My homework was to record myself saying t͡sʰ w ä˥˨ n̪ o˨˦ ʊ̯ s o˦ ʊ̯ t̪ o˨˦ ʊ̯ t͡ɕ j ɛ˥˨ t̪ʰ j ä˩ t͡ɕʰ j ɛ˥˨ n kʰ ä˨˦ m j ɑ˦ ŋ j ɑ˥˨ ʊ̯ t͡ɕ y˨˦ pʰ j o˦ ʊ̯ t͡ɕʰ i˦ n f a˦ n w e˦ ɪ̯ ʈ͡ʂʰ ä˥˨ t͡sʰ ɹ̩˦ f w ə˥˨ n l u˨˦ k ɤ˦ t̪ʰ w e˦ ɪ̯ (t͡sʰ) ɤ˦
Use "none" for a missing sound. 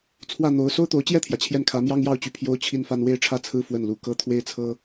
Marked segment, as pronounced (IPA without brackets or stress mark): t͡sʰ